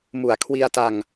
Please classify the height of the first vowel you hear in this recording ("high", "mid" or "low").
high